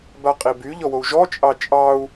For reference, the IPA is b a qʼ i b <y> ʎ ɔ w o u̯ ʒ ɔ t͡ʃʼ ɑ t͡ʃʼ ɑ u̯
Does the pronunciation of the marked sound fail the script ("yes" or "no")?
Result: no